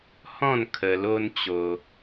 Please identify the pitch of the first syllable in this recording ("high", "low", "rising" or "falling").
falling